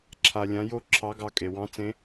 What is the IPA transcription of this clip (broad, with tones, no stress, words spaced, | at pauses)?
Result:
ǁʰa˧lʲã˧˥jo˥ ǁʰɑ˧˥ɡɑ˧ kʼe˩wɑ̃˧˥t͡sẽ˧˥